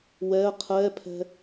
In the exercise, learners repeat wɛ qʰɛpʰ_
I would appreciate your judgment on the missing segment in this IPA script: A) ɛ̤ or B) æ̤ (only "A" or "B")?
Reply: A